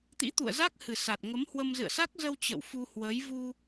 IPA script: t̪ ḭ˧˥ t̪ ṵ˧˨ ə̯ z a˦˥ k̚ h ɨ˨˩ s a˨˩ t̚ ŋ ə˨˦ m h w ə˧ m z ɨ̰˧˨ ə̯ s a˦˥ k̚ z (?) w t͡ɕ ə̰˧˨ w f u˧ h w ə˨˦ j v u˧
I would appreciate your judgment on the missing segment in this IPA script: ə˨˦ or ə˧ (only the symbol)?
ə˧